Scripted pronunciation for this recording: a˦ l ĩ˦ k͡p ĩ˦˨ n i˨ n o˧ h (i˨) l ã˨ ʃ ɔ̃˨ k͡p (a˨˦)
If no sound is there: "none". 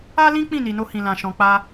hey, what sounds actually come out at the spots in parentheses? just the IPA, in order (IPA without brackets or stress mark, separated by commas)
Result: ĩ˨, a˧